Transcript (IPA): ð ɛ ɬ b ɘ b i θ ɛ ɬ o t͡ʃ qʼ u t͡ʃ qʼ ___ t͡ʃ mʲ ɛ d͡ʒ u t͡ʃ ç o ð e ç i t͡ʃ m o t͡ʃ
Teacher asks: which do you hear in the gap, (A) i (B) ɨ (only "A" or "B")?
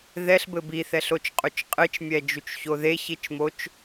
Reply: B